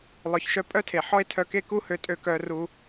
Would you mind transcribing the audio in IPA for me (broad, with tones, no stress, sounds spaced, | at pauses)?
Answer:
lˠ œ˨ ç ʃ œ˧ pʼ œ˦ tʰ e˨ ħ ɔ˦ e̯ tʰ œ˧ k e˦ k u˦ h ø˧ tʼ ø˧ k œ˧ r u˧